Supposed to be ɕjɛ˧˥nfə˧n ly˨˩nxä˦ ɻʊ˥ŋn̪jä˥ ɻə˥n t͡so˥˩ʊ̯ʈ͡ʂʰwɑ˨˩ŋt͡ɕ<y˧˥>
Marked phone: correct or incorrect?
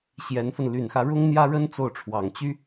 incorrect: y˥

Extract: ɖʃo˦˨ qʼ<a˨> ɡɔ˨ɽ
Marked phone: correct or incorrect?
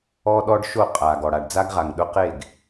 correct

